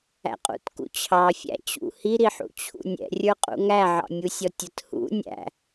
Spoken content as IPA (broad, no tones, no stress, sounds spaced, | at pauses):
æ̰ qʼ ṵ t k ṵ t͡ɕʰ ɑ fʲ æ̰ t͡ɕ ṵ h i ɾ i ħ ṵ t͡ɕʰ ṵ nʲ ɛ̰ rʲ ə˞ qʼ ṵ ŋ æ ʕ ɑ̰ mʲ u sʲ ɔ tʲ ə t h ṵ nʲ æ̰